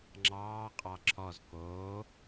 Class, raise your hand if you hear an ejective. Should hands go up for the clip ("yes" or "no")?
yes